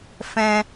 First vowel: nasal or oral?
nasal